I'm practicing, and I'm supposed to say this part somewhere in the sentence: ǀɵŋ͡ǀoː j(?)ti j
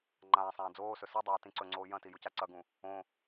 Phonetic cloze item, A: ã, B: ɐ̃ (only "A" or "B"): B